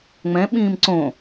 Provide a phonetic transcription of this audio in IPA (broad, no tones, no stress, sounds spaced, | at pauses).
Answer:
ŋ͡m ɛ̃ ɓ ĩː m ǀ õ